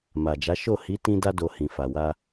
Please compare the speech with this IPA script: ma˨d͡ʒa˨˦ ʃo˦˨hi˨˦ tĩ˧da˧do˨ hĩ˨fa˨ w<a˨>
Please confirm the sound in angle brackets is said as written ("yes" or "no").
no